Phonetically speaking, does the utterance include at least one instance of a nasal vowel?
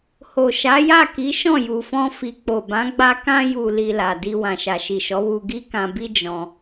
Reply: yes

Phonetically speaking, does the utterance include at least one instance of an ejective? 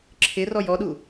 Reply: no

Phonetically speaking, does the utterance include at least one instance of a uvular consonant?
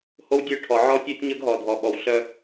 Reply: no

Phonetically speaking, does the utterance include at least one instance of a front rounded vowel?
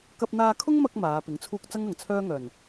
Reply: yes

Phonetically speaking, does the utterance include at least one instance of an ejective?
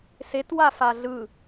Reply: no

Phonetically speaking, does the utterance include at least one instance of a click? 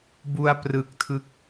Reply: no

